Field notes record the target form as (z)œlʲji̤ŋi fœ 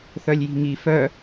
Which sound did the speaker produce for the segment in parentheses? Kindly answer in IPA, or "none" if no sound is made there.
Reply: θ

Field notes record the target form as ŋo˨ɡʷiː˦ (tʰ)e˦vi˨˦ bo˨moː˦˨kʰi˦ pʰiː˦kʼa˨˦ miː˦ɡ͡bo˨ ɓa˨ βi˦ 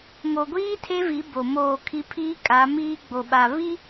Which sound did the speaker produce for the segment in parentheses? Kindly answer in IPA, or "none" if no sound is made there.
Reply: tʰ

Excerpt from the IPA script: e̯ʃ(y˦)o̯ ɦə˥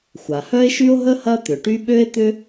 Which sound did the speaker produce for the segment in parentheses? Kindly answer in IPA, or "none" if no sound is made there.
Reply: y˥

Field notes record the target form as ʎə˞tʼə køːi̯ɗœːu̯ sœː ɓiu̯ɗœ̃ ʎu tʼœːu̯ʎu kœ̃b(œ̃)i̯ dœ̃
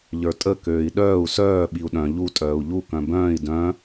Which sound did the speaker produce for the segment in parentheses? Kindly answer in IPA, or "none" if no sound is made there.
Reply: œ̃ː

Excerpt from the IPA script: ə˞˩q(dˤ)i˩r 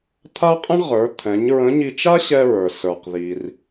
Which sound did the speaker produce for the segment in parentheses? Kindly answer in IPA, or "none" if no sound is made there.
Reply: ð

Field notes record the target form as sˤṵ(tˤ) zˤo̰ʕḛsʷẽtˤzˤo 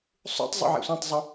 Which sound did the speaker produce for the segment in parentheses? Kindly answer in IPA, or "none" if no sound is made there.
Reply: tˤ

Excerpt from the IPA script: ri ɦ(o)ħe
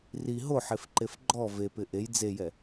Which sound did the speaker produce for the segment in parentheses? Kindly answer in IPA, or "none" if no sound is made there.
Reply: o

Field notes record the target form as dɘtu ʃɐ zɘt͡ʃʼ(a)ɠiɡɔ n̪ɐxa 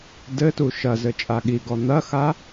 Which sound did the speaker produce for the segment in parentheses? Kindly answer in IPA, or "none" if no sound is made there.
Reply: a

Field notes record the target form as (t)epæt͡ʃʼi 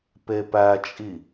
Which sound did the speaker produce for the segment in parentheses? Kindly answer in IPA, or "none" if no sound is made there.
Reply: p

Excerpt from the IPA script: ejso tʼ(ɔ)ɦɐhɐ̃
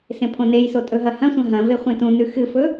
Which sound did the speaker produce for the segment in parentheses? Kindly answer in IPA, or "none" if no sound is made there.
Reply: ɵ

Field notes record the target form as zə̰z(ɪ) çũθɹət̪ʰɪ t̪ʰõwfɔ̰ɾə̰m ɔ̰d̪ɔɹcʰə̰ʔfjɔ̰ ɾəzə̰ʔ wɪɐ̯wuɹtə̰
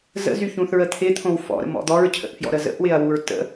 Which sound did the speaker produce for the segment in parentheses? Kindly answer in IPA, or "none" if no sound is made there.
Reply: y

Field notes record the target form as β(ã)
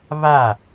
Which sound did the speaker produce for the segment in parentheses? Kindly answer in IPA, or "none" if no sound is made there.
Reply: a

